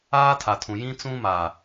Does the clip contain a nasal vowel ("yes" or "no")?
yes